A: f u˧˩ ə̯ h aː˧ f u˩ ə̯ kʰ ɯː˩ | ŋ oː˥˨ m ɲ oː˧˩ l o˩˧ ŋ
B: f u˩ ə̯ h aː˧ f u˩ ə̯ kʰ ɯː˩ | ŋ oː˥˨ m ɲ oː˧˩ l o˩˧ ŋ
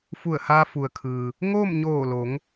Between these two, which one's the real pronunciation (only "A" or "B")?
A